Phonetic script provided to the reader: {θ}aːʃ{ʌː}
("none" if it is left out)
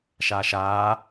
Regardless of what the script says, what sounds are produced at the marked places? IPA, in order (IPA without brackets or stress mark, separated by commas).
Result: ʃ, aː